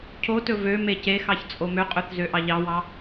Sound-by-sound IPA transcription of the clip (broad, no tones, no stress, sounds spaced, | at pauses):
cʰ o t ɵ v ø m e c e x ɑ ç t͡sʼ o m ø qʼ ɵ θ z ø ʔ ɑ ʎ ɑ w ɑ